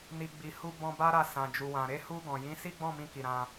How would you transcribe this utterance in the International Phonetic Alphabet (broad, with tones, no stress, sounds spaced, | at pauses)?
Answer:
n i˨ ɡ͡b i˨ h u˧ b ɔ̃˧ b a˦ ɾ a˧ s ã˨ d͡ʒ u˨ w ã˨ ɾ e˧ h u˧ ɡ ɔ̃˨ j ĩ˨˦ s i˦ ɡ͡b ɔ̃˦˨ m ĩ˧ k i˨ ɾ ã˧